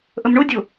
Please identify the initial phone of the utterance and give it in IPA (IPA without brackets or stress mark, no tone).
ʔ